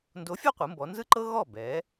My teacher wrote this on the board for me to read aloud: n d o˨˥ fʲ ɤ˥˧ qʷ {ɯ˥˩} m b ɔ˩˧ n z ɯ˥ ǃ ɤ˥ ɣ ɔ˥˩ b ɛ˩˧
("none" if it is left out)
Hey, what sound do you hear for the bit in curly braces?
ɯ˩˧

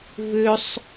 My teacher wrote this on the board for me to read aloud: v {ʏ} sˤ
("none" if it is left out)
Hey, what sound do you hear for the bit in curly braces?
ʏ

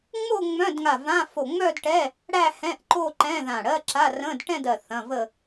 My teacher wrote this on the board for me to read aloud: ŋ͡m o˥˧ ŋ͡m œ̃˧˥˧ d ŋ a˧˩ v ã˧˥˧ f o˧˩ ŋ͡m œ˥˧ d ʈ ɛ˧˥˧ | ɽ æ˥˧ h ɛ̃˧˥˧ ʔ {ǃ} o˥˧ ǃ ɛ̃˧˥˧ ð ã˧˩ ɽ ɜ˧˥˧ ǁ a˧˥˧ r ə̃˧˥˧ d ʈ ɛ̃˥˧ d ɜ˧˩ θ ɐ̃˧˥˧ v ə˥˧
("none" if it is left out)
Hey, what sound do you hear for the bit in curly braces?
ǃ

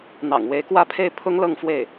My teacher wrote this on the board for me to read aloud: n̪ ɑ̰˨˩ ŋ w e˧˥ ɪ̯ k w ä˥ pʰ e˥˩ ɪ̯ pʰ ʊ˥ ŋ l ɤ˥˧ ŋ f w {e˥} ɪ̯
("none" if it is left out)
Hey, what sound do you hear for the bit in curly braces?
e˥˩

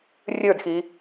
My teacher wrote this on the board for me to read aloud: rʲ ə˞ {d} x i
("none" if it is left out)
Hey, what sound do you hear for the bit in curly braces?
d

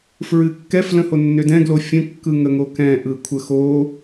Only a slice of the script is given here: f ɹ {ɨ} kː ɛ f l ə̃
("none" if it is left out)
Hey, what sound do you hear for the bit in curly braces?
ɨ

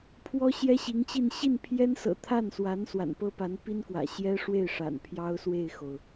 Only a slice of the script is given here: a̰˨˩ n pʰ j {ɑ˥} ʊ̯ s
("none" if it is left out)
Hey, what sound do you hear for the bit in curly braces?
ɑ˥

